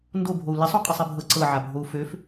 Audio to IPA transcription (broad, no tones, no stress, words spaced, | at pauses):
ndobʱou̯ lisˤo qʼɤsˤibʱɤ ǀɤʕabʱou̯ føf